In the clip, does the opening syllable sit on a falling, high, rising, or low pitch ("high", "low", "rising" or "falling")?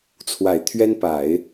low